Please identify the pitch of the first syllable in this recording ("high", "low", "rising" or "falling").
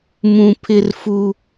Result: high